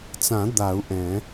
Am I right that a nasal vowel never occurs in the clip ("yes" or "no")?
no